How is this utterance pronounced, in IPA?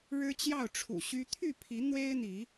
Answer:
ɻ ɻ̩˦ t͡ɕ j ɑ˥˨ ʊ̯ ʈ͡ʂʰ ṵ˨˩ ɕ y˦ t̪ʰ y˥˨ pʰ i˨˦ n̪ w e˦ ɪ̯ n̪ i˨˦

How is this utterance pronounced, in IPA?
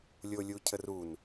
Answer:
lʲ o lʲ u cʰ ə r u n

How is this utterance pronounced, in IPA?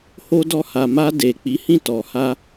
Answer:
h o˧ d ɔ˧ h a˨ m a˧ d e˨ k͡p i˨˦ h ĩ˦˨ t ɔ˨ h a˧

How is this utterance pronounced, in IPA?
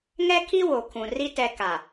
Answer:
ŋ ɛ˦ kʰ i˦ w o˨ kʰ ũ˨ r i˦ t ɛ˨ k a˨

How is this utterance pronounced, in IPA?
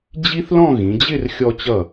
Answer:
d͡ʑ i˥ θ l ɔ̃˥˧ ɣ ĩ˩˧ d͡ʑ ɪ˥˧ r xʲ ɔ˧ t͡ɕ ʌ˧˩

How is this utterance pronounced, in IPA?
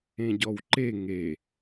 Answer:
ẽ ɟ ɔ w ǃ e ŋ e

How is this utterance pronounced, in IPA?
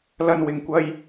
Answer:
l ɐ˧ n w ɪ˨ ŋ kʷ ɐ˧ j

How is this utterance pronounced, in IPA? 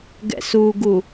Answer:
ɡ ɛ̰ s u ɡ u

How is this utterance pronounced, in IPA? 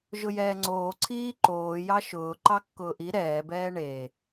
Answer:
ʒ ʊ j ɛː ŋ͡ǀ oː ǀʰ iː ǃ oː j ɑ ʃ ʊː ǃ ɑ kː ʊː ʔ i ɾ ɛː b ɛː ɳ e

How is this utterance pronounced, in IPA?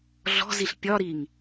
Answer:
ɮ ɔ̤ z i ɬ pʲ ɒ ɾ i ŋ

